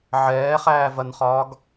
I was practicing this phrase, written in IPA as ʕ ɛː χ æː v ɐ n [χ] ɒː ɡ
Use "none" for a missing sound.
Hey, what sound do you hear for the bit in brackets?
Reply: χ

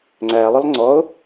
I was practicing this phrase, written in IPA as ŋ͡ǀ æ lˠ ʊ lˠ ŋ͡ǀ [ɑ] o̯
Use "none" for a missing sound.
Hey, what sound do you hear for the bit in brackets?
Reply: ɔ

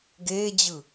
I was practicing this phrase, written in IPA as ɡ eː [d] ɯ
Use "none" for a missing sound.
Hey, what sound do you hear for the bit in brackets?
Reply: d͡ʑ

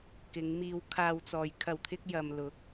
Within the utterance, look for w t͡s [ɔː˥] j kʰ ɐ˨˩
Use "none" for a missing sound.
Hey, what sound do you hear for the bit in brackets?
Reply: ɔː˨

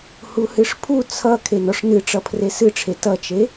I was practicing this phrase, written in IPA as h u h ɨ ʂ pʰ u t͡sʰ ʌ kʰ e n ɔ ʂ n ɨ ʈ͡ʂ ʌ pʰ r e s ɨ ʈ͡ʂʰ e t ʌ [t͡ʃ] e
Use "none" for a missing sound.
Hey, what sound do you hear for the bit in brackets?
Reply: t͡ʃ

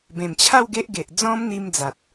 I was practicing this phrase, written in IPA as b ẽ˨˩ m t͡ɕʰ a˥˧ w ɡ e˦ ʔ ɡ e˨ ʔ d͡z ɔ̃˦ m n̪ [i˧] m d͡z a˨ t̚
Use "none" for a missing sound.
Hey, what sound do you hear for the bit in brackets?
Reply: i˧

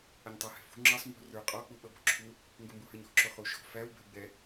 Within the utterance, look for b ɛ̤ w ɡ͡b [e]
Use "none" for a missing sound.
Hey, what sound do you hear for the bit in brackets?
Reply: ɛ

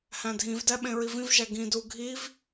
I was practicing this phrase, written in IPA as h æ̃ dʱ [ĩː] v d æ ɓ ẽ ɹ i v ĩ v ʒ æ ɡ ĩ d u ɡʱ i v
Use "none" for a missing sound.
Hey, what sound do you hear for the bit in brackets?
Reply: ĩ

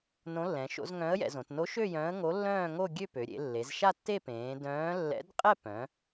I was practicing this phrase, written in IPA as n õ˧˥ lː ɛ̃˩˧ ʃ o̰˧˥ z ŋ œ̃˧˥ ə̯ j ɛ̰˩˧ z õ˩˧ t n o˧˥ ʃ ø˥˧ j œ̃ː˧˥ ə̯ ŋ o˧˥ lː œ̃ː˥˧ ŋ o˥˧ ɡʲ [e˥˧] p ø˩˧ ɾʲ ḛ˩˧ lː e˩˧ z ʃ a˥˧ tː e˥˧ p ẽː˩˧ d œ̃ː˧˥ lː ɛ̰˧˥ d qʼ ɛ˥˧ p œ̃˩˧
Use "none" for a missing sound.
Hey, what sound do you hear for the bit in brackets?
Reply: ø˥˧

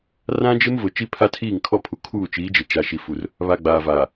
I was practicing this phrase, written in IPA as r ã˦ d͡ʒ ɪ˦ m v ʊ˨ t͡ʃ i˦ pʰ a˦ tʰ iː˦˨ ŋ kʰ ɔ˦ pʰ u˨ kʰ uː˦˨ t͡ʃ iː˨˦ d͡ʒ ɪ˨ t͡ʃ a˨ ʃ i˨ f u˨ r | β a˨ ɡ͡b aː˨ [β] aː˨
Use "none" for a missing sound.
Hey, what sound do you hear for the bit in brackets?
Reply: v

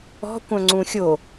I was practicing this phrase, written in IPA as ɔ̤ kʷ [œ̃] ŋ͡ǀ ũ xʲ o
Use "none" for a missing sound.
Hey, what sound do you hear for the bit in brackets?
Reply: œ̃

